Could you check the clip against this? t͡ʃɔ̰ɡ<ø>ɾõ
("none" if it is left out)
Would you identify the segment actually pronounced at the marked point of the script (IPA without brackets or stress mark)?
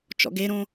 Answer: e